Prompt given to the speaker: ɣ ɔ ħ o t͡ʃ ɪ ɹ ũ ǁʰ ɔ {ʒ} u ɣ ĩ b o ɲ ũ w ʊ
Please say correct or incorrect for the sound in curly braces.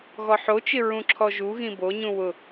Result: correct